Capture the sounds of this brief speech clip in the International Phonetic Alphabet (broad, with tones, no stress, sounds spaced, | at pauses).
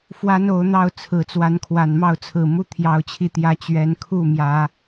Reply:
f w a˦ n o˨˦ ʊ̯ n̪ ɑ˥˨ ʊ̯ t͡sʰ ɹ̩˨˩ t͡s w a˨˦ n kʰ w a˨˩ n m ɑ˥˨ ʊ̯ t͡sʰ ɹ̩˨˩ m u˦ t̪ʰ j ɑ˨˦ ʊ̯ t͡ɕʰ i˨˦ t̪ j ä˨˦ t͡ɕ ɥ ɛ˨˦ n kʰ u˥˨ m j ä˨˦